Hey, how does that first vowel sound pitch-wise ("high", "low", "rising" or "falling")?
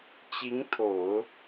rising